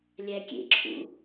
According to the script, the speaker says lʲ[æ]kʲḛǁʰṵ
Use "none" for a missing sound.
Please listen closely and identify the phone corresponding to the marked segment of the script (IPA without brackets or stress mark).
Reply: æ